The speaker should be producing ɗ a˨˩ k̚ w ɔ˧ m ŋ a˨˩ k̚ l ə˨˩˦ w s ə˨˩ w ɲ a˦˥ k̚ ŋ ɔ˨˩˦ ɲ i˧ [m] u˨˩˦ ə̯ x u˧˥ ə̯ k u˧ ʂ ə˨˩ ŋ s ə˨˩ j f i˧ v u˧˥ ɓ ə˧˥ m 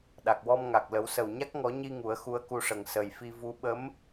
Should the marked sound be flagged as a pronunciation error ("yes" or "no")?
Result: yes